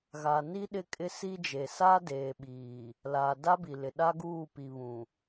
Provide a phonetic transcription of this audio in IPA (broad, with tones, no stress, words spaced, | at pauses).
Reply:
ɣa˨ni˦ ɗɪ˦kʼɪ˦ si˦d͡ʒe˨ sa˦deː˨ɓiː˨ | laː˨da˦bi˨lɪ˨ ɗa˦ɡuː˦˨pi˨βũ˨